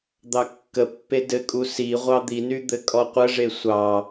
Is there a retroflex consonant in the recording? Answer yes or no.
yes